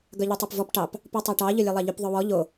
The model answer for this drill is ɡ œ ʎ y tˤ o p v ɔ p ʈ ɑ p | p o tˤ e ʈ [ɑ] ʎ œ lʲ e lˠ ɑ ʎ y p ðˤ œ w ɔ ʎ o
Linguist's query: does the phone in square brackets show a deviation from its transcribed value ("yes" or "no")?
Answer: no